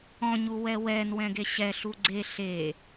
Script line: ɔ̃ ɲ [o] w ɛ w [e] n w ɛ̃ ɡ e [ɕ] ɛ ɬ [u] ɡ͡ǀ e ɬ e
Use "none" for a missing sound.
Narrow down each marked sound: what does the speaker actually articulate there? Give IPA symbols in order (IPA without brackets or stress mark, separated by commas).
u, ɛ, ɕ, u